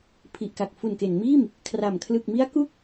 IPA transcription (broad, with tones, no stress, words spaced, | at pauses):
pʰi˨˩ʔka˨˩k̚ fu˨˩nke˩˦nmiː˥˩m | kʰra˨˩m kʰlɯ˨˩k̚mi˦˥a̯ku˥˩k̚